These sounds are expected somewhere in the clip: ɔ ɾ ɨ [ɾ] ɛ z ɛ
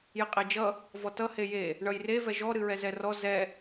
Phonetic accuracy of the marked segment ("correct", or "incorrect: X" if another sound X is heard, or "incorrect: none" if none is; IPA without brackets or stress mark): incorrect: ɹ